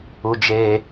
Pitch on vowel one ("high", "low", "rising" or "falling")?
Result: high